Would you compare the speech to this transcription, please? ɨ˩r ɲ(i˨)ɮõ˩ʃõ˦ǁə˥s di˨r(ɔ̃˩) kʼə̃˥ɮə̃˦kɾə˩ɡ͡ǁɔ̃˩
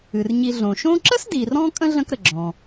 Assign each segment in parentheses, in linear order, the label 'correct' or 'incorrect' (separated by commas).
correct, incorrect